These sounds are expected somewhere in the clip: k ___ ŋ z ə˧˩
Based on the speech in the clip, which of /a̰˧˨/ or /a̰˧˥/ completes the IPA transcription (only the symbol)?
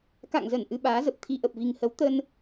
a̰˧˨